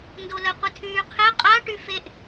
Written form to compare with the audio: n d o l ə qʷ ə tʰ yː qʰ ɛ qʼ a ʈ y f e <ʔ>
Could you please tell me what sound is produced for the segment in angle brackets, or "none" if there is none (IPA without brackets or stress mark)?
ʔ